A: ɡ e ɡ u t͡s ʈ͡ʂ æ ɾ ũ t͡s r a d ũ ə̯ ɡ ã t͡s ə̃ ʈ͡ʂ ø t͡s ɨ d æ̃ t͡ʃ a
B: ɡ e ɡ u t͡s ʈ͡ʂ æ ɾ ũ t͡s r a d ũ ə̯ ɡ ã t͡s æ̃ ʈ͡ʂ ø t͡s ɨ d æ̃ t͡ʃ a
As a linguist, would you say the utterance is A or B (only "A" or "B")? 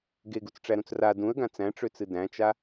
B